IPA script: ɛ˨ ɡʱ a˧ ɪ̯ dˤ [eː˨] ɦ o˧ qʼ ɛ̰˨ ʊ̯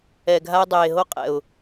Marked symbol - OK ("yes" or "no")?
yes